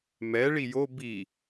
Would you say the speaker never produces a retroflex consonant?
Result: no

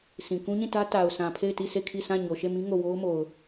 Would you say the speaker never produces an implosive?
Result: yes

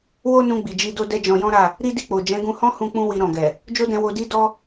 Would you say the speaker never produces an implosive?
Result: yes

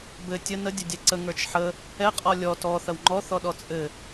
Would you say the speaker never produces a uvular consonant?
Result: no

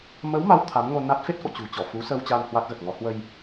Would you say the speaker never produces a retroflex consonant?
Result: yes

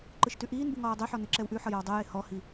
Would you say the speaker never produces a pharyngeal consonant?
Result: no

